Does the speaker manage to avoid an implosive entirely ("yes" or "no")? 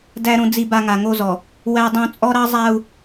yes